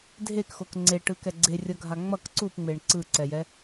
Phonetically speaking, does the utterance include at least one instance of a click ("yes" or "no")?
yes